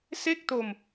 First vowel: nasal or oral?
oral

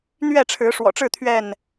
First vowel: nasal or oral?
oral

